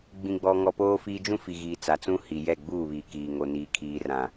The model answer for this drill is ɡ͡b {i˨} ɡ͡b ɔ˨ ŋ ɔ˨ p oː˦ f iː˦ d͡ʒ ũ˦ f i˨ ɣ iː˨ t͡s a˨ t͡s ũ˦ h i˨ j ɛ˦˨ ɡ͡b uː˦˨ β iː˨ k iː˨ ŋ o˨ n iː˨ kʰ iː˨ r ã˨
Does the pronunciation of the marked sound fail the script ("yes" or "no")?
yes